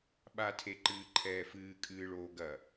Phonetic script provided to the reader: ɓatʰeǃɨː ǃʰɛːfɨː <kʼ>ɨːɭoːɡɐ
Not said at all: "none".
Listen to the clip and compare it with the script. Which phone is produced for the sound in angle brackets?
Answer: kʼ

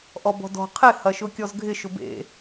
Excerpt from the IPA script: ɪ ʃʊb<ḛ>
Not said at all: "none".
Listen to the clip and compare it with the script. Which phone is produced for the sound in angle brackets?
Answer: ḛ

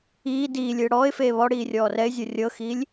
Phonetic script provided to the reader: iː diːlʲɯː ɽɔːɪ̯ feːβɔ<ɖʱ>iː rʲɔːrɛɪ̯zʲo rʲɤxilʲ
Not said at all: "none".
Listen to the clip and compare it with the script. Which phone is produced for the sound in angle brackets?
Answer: ɽ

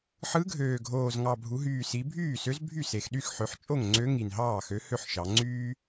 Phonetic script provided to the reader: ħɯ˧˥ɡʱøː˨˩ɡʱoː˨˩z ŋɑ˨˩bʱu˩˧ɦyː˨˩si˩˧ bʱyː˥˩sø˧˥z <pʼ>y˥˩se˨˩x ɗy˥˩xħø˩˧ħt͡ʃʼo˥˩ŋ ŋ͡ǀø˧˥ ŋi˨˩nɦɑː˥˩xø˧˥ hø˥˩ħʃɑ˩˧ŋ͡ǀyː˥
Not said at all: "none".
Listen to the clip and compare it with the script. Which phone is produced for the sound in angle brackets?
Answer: bʱ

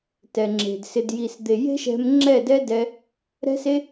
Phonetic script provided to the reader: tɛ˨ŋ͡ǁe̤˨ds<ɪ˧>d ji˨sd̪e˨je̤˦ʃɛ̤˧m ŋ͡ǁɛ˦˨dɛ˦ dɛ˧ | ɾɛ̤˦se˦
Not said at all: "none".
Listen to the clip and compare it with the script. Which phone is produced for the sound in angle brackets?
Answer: ɪ˧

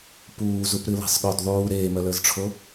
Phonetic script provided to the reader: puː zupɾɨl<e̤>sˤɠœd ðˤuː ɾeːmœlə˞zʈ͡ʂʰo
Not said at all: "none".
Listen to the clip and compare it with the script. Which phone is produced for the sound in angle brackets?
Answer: e̤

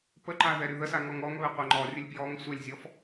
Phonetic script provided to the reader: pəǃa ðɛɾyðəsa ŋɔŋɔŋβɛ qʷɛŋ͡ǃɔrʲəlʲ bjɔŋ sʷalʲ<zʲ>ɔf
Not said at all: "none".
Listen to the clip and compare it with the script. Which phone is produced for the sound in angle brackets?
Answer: zʲ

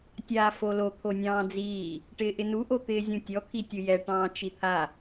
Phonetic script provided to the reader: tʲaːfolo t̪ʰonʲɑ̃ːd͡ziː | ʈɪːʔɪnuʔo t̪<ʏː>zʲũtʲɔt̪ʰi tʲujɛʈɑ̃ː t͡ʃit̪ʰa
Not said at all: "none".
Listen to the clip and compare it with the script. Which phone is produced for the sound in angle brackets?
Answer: ɪː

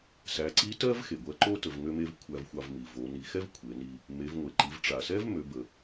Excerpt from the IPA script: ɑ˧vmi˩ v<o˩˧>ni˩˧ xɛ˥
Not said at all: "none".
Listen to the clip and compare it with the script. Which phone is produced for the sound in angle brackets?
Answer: o˩˧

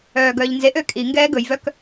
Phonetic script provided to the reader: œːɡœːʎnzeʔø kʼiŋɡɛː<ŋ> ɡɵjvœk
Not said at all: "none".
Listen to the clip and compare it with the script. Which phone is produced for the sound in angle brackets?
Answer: none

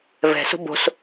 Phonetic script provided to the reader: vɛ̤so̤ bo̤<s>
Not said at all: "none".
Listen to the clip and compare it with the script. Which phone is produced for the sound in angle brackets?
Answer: s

